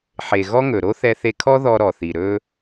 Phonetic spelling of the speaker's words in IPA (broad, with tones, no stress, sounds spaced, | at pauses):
ħ e˩ ɣ ɔ˥ ŋ ɵ˩ ɾ o˥ θ ɛ˧ θ e˧ kʰ ɔ˥ ð ɔ˧ ɾ ɔ˩ θ i˩ ɾ ɵ˧